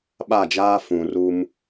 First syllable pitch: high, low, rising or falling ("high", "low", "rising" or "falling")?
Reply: falling